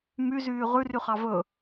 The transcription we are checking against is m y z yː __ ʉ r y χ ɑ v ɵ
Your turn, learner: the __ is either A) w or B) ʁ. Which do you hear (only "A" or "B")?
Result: B